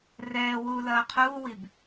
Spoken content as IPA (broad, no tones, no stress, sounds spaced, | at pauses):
r ɛː w uː l ɐː qʰ uː w i b